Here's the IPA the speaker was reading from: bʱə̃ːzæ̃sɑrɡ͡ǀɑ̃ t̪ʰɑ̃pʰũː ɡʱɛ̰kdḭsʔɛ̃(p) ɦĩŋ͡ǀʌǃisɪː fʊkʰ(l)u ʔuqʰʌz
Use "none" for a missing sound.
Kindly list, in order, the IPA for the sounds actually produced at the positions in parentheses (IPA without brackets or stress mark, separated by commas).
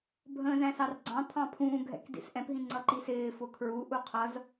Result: p, ɹ